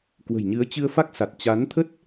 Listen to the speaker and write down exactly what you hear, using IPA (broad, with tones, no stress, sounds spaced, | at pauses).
k w ə̤˨˩ j ɲ ɨ˨˦ ə̯ t͡ɕ ɨ˧ ə̯ f a˦˥ k̚ s a˨˩ t̚ t͡ɕ a˨˦ n t̪ʰ ə˦˥ t̚